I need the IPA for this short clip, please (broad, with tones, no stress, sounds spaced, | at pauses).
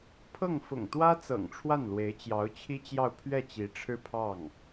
pʰ ɤ˥˩ ŋ f ʊ̰˨˩ ŋ t̪ w ä˥ t͡s ɤ̰˨˩ ŋ ʈ͡ʂʰ w a˥˩ n l w e˧˥ ɪ̯ t͡ɕ j ɑ˧˥ ʊ̯ t͡ɕʰ i˥ t͡ɕ j ɑ˥˧ ʊ̯ pʰ ɥ ɛ˥˩ t͡ɕ i˧˥ ʈ͡ʂʰ ɻ̩˥˧ pʰ ɑ˥˩ ŋ